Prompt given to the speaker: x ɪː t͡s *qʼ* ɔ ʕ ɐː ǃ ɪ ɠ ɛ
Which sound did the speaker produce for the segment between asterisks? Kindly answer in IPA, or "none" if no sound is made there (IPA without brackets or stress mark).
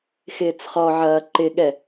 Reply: χ